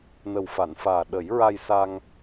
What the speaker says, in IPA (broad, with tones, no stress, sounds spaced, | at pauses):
n ə˨˩ w f a˨˩˨ n f aː˨˩ ɗ ə˨˩˦ j ɹ a˧ j s a˧ ŋ